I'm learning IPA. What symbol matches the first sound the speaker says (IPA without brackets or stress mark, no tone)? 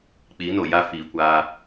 k͡p